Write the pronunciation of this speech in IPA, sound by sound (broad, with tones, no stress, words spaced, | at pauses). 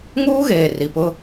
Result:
ŋuː˦ɣeː˨ ri˨pʊ˦